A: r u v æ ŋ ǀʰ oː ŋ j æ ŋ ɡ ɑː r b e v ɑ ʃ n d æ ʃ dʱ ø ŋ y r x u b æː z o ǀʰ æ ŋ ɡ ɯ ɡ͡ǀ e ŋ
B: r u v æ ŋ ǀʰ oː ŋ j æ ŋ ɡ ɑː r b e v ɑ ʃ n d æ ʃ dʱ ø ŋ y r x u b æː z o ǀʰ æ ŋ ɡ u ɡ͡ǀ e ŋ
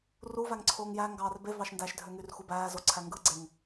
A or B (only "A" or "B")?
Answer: A